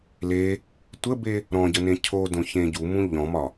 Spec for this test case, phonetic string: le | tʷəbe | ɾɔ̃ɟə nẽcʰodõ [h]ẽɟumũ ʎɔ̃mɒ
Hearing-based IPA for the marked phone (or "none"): ç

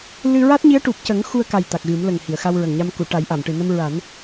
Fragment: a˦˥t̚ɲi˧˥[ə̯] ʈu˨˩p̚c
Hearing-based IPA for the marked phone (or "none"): ə̯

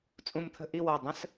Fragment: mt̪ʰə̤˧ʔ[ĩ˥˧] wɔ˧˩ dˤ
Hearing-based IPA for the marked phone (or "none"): i˥˧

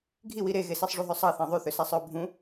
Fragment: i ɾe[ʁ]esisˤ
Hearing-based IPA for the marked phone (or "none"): ɣ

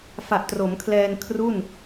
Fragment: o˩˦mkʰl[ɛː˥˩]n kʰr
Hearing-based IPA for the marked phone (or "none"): ɛː˧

